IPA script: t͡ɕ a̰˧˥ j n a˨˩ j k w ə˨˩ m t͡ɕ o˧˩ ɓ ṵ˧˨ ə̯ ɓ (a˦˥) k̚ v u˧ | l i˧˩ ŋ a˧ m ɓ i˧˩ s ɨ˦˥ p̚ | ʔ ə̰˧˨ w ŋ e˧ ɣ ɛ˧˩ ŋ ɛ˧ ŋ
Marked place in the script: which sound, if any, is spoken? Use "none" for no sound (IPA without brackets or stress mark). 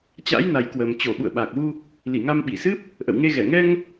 a˨˩